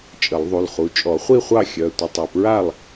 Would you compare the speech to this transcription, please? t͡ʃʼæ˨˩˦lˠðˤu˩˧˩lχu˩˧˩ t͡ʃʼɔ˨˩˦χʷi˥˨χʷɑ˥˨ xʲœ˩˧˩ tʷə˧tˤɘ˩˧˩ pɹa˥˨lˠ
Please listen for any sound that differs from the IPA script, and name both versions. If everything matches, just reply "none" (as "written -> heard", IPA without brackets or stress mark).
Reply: æ˨˩˦ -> ə˨˩˦